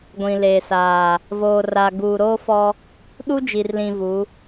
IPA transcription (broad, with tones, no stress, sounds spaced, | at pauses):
ɡʷ ĩ˨ l eː˨ s aː˨ | v oː˨ r a˨ ɡ uː˨ ɾ oː˦ f ɔ˦ | ɗ u˦ d͡ʒ i˨ r l ĩ˨ v u˨˦